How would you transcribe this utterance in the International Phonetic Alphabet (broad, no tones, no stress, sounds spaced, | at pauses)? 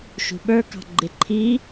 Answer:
ʃ ṳ ɓ ə˞ k ɑ̤ ɡ͡ǃ ɪ ǃʰ i